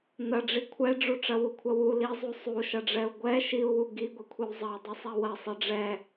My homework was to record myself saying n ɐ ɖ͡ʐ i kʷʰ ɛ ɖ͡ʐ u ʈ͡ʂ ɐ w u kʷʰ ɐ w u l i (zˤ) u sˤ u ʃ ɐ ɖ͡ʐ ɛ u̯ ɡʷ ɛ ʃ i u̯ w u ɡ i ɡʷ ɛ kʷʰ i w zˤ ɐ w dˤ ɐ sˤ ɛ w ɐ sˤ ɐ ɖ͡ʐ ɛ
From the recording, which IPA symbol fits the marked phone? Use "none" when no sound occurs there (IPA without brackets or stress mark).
zˤ